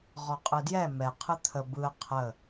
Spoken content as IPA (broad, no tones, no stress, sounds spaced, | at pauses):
ʁ ɔ qʼ ɯ d j ɛ m ɛ qʰ ɯ t̪ʰ ə b ɯ ə̯ qʰ ə